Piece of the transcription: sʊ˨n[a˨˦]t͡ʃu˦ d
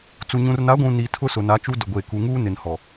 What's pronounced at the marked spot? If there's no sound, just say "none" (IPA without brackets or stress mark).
a˨˦